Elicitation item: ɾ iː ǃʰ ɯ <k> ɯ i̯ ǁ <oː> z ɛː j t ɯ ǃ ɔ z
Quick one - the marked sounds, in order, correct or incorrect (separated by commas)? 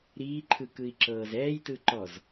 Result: correct, incorrect